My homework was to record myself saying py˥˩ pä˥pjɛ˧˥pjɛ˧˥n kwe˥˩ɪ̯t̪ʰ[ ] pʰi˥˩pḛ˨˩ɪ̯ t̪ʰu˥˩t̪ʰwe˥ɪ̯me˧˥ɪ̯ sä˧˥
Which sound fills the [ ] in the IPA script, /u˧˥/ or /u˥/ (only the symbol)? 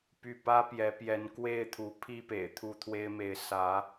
u˧˥